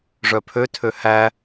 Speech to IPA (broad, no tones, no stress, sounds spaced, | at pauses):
ʐ œ pʰ ø tʰ ø h æ